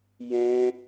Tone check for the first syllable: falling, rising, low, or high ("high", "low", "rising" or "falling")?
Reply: high